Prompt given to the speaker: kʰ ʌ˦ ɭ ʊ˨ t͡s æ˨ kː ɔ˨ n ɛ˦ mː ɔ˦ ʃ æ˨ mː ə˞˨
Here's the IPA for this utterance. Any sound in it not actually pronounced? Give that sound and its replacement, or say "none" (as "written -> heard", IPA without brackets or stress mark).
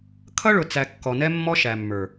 none